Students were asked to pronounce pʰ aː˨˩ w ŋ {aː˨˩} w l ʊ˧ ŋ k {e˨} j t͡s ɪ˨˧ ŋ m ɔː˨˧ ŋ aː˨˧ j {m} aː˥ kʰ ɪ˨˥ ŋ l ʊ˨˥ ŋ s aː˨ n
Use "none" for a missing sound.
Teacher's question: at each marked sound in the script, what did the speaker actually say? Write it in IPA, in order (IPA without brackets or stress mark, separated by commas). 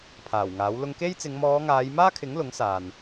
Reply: aː˨˥, e˥, m